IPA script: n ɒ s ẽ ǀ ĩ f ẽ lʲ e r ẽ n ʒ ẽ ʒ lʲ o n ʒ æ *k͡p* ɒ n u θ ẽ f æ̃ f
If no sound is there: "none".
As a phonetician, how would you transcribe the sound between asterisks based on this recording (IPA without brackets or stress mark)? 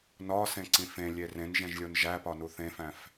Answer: p